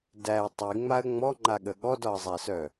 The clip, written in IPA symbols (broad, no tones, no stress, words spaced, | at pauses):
dæə̯ tˤiŋ͡maə̯ ŋ͡mɔŋ͡ǃaɠə ɠɔdɒə̯zˤæsœ